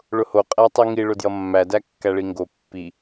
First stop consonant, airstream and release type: ejective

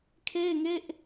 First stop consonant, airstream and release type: aspirated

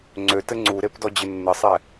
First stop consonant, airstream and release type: click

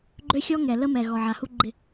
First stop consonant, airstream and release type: click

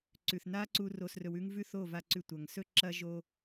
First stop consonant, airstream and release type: click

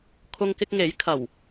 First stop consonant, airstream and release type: aspirated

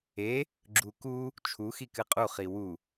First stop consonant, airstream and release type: click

